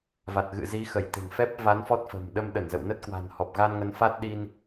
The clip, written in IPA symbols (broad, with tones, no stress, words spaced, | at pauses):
va˨˩t̚ɣɨ̰˧˨ zi˨˦ xə˧˩jt̪e̤˨˩ŋfɛ˦˥p̚va˨˦n fɔ˦˥t̚fə̤˨˩m ɗə˧mɗə˧˩nzə̰˧˨w nə˦˥t̚kwa̤˨˩n hɔ˨˩p̚ɣa˧nŋə˨˦n fa˦˥t̚ɗi˧n